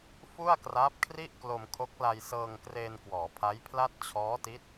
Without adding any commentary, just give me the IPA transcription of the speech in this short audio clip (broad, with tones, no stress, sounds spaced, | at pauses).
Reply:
f u˥˩ a̯ k r aː˦˥ p̚ kʰ r i˥˩ ʔ k l o˧ m kʰ o˦˥ k̚ l a˧ j s ɤː˧ ŋ k r eː˧ n k w ɔː˩˦ pʰ a˦˥ j pʰ l a˥˩ t̚ t͡ɕʰ ɔː˦˥ t i˦˥ t̚